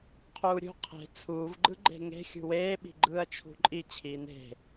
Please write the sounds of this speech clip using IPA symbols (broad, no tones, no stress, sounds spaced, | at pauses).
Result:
qʰ uː ɾʲ ṳ qʰ e̤ t͡sʰ uː v ɡ͡ǃ ɯ ɡ͡ǃ e̤ ŋ e̤ xʲ ṳ w eː ɓ i̤ ɡ͡ǃ ɯː ɐ̯ t͡ʃʰ ṳ ǃʼ i t͡ɕʰ iː n e̤